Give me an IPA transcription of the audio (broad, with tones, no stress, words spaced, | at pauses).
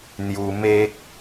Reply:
n̪ju˧me˦k̚